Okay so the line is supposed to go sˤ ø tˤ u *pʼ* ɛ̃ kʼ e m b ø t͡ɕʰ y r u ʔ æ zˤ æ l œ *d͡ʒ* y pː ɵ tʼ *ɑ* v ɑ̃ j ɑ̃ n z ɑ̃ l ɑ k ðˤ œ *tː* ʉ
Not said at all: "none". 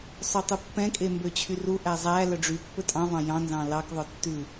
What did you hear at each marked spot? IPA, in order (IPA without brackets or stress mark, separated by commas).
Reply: pː, ɖ͡ʐ, ɑ̃, tː